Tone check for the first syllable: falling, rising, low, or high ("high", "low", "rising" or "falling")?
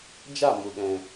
falling